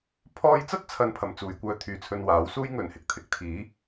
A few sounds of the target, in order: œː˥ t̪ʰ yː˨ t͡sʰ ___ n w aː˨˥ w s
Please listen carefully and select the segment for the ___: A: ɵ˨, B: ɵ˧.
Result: B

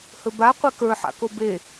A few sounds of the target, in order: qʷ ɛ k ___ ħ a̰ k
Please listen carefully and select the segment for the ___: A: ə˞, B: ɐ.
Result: A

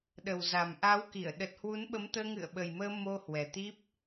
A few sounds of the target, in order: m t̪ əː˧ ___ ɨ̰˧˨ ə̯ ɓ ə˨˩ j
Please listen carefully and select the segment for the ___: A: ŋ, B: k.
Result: A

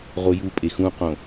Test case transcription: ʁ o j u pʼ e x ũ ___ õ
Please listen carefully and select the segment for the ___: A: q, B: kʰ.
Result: A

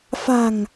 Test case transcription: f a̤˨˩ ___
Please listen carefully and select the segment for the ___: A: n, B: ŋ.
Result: B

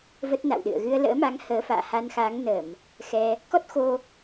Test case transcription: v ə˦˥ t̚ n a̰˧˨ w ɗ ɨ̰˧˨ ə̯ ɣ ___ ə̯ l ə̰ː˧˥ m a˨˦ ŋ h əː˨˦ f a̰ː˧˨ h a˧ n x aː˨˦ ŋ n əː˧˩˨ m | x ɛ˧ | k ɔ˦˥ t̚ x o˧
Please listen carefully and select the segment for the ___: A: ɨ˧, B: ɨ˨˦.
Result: A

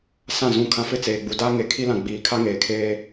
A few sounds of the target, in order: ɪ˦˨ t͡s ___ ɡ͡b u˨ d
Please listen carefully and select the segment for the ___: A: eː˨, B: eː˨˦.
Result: A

